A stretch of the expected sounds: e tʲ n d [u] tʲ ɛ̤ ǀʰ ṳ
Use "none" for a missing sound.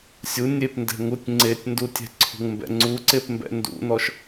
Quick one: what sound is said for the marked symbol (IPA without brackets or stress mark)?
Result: u